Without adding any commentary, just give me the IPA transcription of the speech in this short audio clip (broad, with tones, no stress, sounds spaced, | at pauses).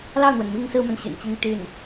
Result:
l ɑ˥˩ ʊ̯ n̪ w ə˩ n m i˥ ŋ s ɹ̩˥ m a˨ n ɕ y̰˨˩ n t͡ɕ i˥ ŋ t̪ y˥˩ n